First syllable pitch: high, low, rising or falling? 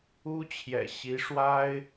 high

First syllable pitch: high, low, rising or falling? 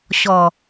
low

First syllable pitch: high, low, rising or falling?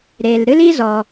low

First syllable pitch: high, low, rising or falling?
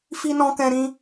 high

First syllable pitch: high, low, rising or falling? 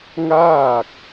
falling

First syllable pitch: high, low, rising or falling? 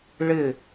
falling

